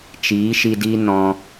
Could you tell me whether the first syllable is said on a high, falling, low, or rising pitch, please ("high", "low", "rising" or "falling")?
rising